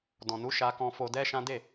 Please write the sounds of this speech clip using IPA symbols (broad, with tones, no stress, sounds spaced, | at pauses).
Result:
d ɔ̃˨ n u˨˦ ʃ a˧ k ɔ̃˧ f o˧ d ɛ˦ ʃ ã˦ d e˦˨